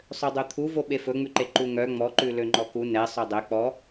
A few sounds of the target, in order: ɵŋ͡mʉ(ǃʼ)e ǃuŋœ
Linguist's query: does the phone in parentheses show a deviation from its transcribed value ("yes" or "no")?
yes